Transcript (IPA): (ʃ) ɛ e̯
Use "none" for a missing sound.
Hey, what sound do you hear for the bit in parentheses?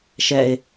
ʃ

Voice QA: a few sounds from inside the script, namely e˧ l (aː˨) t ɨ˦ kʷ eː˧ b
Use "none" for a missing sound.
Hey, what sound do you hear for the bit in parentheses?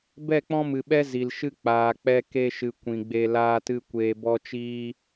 aː˦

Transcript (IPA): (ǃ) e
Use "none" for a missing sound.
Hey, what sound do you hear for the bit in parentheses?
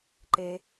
ǃ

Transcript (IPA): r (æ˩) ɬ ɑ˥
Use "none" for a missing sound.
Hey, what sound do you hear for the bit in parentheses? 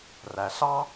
æ˩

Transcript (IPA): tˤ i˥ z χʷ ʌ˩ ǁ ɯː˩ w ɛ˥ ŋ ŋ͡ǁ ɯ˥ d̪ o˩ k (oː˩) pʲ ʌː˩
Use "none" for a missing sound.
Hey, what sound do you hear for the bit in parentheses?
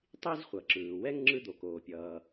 oː˩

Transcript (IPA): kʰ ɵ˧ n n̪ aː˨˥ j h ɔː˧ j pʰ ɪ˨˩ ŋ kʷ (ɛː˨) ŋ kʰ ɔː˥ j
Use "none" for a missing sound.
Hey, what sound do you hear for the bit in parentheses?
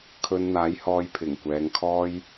ɛː˨˧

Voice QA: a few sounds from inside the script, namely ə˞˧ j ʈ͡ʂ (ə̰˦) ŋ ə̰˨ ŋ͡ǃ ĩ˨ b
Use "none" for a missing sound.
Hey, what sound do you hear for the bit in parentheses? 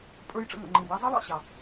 ə̰˧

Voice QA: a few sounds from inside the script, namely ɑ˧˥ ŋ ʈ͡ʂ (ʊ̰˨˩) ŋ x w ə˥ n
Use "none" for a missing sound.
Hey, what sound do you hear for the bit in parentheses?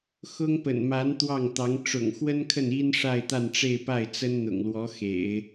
ʊ̰˨˩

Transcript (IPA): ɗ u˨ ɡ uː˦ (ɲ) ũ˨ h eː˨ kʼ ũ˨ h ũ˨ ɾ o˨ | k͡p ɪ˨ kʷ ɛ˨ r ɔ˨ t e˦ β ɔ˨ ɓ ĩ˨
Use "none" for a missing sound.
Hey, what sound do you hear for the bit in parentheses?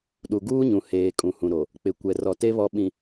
ɲ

